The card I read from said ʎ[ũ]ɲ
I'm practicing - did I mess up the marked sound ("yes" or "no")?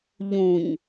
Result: no